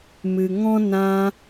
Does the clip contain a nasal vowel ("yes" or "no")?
yes